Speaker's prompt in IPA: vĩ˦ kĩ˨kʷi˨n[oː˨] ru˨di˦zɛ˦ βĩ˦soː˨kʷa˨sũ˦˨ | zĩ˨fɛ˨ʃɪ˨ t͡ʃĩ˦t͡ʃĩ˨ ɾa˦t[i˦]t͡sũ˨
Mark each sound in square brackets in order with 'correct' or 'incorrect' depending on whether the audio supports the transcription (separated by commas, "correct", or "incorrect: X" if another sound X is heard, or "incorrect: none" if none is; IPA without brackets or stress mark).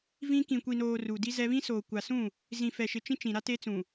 correct, incorrect: e˦